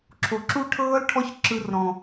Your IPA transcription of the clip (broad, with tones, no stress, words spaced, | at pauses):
ǁʰo˨ǁu˦ʈʰɤː˦lʈʰɔ˦ç ǁɯ˧rɾɔ̃˨